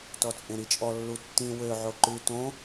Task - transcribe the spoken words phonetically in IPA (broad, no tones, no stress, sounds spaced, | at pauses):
t ɔ t͡sʼ ẽ ɾ i t͡ʃʼ ɔ lː u tː ĩ w ø ʕ o ǃ ʉ t õ